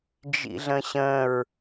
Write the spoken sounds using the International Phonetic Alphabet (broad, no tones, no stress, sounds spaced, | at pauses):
d͡ʒ ḭ ɮ ə̃ ɕ ə̃ ɹ